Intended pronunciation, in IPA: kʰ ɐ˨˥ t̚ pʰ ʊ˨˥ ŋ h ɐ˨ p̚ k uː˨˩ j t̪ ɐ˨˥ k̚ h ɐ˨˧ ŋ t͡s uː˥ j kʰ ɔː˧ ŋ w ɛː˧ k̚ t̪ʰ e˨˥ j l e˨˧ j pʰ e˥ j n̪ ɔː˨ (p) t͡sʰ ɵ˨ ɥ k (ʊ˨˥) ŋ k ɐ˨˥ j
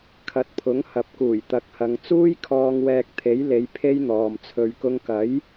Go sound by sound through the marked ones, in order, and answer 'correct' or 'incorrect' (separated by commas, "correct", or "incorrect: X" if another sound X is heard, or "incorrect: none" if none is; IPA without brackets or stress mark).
incorrect: m, incorrect: ʊ˧